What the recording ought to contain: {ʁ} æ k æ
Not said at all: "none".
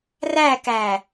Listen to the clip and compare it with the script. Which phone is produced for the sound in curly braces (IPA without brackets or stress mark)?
r